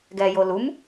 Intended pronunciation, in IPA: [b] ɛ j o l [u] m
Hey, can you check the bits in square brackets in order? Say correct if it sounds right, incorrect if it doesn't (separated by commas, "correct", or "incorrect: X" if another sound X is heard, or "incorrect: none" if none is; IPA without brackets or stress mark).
incorrect: ɡ, correct